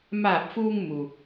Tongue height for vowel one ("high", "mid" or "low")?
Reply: low